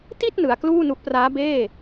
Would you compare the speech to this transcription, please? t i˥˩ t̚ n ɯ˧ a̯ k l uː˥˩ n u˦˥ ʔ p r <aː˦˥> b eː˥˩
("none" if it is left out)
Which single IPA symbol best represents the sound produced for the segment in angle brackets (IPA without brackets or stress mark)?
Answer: aː˦˥